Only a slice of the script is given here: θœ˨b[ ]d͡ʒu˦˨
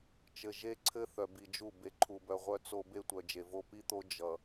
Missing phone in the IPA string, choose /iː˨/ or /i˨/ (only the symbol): i˨